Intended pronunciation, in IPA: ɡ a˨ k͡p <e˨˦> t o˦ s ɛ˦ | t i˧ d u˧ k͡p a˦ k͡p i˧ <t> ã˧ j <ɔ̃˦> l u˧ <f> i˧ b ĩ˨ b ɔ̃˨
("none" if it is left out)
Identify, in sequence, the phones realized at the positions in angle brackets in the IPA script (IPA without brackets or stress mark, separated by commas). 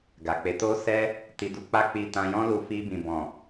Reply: e˨˦, t, ɔ̃˦, f